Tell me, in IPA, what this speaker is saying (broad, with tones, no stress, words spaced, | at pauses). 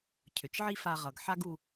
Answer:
cʰʏ˩t͡ʃʕi˥fa˧ ʁʌ˩ɡħa˥ɡ u˧